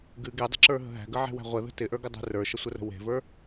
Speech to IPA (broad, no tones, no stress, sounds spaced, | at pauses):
ɡ ɨ ɡ e dˤ ə̤ ǁ ə˞ ɦ ə̤ ɦ æ̤ ɡ ə ʕ e̤ w æ̤ ʁʷ ə ð ə̤ t ɪ ʔ ə˞ ɡ ɪ dˤ e̤ r ə˞ ʃ ə sʷ ə r ə̤ w e̤ v ə˞